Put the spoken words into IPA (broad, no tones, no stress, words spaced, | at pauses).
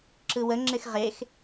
ǁɯwəŋ͡ǁɪx ʁex